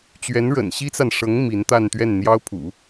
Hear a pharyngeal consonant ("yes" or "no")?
no